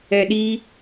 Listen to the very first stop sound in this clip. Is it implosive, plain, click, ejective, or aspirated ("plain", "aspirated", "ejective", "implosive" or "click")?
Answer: implosive